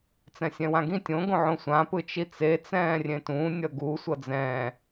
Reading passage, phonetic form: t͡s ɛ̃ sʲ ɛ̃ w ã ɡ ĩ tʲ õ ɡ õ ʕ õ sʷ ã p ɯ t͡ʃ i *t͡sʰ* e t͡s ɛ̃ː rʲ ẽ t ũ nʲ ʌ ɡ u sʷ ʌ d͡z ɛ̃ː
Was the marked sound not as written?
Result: yes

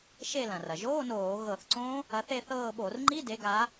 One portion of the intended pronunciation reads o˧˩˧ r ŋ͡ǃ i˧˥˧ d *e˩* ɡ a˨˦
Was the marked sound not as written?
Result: yes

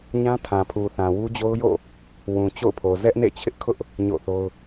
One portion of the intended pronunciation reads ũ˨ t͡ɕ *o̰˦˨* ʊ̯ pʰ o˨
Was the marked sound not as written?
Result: no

